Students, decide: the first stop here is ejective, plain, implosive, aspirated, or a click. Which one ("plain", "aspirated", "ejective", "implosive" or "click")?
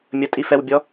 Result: ejective